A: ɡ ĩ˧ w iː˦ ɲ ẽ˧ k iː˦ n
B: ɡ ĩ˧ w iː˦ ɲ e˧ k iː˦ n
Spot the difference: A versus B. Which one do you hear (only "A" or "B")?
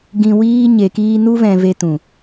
B